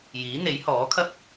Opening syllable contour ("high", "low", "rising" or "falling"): rising